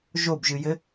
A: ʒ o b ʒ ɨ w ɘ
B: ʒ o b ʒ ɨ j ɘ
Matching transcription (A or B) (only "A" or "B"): B